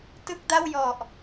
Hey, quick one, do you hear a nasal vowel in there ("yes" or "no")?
no